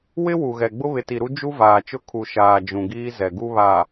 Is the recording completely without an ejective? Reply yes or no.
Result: yes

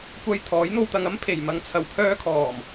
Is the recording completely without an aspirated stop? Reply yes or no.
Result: no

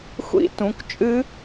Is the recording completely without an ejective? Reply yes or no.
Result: no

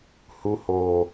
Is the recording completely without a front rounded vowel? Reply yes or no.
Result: yes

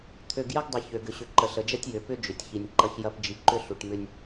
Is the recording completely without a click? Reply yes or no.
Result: no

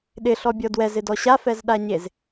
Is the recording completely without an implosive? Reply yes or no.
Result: no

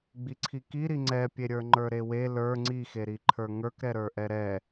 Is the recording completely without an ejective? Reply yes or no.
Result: yes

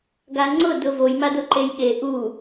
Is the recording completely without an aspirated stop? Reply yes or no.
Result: yes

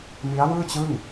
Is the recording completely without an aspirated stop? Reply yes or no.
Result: yes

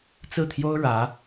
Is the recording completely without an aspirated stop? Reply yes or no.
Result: no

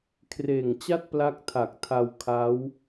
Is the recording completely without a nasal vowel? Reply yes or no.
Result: yes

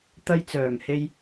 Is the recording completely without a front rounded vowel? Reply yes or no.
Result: no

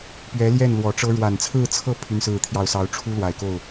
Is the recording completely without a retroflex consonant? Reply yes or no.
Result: no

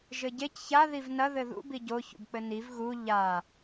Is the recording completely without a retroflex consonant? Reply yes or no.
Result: yes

